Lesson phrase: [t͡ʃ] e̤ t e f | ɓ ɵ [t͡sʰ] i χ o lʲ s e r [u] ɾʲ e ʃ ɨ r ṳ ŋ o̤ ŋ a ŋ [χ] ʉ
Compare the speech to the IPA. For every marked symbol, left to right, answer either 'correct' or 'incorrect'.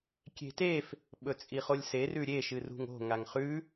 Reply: incorrect, incorrect, incorrect, correct

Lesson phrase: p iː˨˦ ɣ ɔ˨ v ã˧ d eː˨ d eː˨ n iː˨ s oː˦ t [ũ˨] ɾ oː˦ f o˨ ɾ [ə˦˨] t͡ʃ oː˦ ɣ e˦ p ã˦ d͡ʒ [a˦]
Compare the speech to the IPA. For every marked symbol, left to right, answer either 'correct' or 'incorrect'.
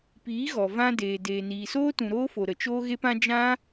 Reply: correct, incorrect, incorrect

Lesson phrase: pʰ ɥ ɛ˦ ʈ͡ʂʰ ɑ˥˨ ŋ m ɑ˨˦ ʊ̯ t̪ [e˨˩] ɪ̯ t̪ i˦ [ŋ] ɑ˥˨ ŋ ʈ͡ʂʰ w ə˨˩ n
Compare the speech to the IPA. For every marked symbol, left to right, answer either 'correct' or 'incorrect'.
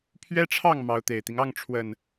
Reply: correct, correct

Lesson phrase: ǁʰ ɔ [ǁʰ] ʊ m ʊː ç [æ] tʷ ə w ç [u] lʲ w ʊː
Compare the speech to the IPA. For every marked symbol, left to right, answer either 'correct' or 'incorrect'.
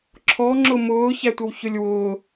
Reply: incorrect, correct, incorrect

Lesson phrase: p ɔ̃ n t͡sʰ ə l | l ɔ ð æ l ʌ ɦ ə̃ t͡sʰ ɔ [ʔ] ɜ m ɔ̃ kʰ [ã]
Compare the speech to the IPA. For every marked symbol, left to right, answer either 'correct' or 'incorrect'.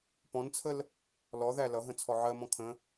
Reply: incorrect, incorrect

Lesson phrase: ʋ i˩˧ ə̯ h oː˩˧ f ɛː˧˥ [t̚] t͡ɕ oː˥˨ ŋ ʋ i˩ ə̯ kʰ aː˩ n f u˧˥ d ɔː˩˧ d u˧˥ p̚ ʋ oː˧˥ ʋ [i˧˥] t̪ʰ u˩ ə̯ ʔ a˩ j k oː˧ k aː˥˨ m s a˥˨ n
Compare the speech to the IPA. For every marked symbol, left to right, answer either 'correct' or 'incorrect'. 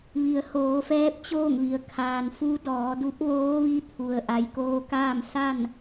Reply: incorrect, correct

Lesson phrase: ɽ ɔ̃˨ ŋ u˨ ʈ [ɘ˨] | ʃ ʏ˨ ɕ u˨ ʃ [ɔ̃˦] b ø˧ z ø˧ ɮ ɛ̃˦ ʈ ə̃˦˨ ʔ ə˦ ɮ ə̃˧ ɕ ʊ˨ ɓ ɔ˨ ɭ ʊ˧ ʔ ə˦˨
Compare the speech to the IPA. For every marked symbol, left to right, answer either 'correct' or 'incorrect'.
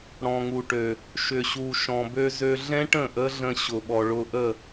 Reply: incorrect, incorrect

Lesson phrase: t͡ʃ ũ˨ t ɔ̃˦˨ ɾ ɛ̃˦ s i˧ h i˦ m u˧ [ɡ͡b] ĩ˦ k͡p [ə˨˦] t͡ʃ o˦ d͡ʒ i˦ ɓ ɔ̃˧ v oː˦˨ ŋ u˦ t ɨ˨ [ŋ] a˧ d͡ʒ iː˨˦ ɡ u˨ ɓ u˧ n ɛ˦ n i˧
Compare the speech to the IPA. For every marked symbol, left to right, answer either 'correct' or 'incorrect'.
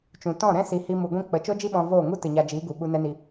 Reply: incorrect, correct, incorrect

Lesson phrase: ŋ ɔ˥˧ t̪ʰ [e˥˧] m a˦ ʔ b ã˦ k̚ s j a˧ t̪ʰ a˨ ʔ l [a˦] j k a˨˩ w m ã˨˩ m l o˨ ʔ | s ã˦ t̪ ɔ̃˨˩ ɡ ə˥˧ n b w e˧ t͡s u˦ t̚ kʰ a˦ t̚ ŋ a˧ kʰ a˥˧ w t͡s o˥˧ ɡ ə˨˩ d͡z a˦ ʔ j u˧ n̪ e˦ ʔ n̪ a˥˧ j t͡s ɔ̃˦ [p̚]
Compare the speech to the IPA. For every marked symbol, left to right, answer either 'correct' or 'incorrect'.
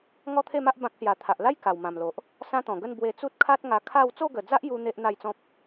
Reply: correct, correct, correct

